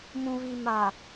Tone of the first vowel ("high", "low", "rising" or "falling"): low